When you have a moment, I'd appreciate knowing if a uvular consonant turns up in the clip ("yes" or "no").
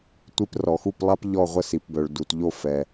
yes